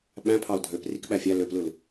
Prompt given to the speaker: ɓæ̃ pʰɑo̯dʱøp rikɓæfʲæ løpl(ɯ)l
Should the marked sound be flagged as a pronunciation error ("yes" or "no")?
no